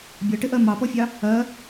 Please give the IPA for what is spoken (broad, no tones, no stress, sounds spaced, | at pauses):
bʲ ʌ ʈ ɪ ʔ ɜ m ɑ p ɔ fʲ ɑ | ɜ